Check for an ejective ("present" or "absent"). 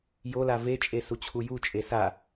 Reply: present